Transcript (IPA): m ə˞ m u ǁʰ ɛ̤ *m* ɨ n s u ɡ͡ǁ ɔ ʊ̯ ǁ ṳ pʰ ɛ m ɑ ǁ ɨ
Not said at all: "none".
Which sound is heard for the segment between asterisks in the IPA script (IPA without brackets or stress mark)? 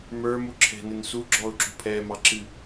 n